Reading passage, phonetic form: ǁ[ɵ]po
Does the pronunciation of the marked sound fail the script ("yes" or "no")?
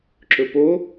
no